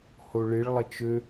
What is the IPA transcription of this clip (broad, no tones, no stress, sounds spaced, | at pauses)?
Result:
h o ɭ ɪ ɭ lˠ ə t͡ʃ ø